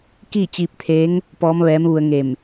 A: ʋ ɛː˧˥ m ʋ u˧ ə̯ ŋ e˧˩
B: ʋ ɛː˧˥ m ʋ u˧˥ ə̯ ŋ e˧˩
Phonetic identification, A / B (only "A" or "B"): A